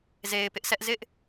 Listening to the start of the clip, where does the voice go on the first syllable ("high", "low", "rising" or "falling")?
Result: low